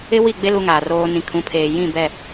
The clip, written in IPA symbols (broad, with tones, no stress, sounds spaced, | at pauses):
ɪ˦ w i˦˨ ɡ͡b e˦ l u˦ ŋ aː˨ r oː˦ n ĩ˨ kʰ ũ˨˦ pʰ eː˨ j ĩ˦˨ b ɛ˦˨